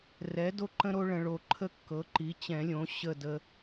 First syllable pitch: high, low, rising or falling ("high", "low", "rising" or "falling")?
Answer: rising